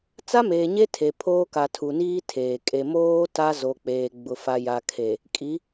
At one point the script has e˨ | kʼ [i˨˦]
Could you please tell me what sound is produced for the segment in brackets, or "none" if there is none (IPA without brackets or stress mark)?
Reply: i˨˦